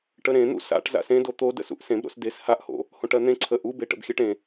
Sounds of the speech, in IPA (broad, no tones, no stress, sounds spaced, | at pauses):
ʈ ə ɾ ẽ n̪ ṵ s a̰ ʈ z a̰ s ẽ d o t̪ o d ə̰ s ṵ ʔ s ẽ b ɾ o̰ s d e s h a ʔ h o̰ | h õ ʈ ɜ n̪ ẽ ǀʰ ə ʔ u b e ʈ ə̰ b xʲ ɜ ʈ ẽ